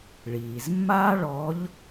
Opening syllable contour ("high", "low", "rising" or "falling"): low